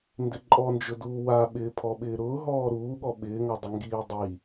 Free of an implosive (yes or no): no